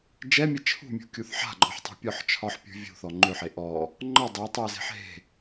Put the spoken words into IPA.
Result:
d͡ʒ ɛ mʲ ɛ t͡ʃʰ ṳ mʲ ṳ kʲ u θ ħ a̤ ɡ͡ǃ ɔ ħ tˤ ṳ pʲ ɔ ħ t͡ʃʰ ɒ ħ pʲ ṳ vʲ ṳ θ ɔ ŋ͡ǃ ø ħ e ʔ ɔ | ŋ͡ǃ ɒ dˤ e ɐ̯ tˤ u ɐ̯ z e̤ ħ ɦ e̤

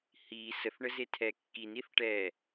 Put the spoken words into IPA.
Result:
h i s ə θ ɳ ə z e tʰ ɛ kː i n i θ ʈ ɛ

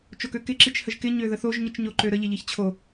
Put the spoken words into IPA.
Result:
t͡ʃ o k ø k ɪ ǁ i t͡ʃ h ə ʒ k ɪ ɲ ø ð ə θ o ʒ ɲ i t͡ʃ ɲ o ǃ ø ɾ ə ʎ ɪ ʎ i ç t͡ɕʰ o

